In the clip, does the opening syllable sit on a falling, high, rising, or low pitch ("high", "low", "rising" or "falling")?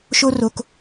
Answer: high